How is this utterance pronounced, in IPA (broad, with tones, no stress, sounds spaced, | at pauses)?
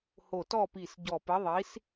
h o˧˩ t ɔ˥˨ p i˧˩ s ɟ ɔ˧˩ p ɘ˨˥ ðˤ i˨˥ s